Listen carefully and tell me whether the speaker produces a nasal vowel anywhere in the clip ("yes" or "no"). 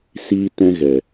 yes